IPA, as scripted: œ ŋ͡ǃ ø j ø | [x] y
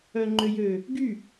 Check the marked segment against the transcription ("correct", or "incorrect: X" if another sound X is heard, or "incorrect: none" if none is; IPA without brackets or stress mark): incorrect: ɡ